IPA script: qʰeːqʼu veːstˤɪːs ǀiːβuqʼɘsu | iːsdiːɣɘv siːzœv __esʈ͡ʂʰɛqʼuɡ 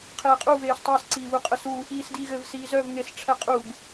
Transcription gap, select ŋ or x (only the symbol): ŋ